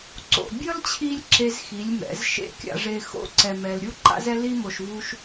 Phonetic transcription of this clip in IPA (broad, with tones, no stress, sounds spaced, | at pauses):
ǀ o̰˨ bʲ ʌ˦ l t͡ɕʰ i˧ lʲ ǁ e˦ z x i˨˦ lʲ m ɛ̰˨˦ z ʃ ḛ˦ kʲ a̰˧ ʐ e˧ x o̰˧ ǀ ɛ˨ m ɛ˨ l ɾʲ u˦ ǃ a̰˦ z ɛ˦ l i˦ m o˨ ʃ v u˦ ʃ